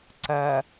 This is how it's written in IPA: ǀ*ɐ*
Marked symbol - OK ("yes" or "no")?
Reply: yes